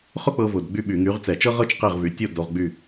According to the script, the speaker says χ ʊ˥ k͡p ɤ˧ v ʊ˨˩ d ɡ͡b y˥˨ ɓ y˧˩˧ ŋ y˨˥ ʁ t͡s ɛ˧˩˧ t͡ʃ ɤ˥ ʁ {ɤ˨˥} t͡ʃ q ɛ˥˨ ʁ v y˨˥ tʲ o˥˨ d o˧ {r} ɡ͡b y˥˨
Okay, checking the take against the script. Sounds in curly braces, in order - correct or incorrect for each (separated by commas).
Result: incorrect, incorrect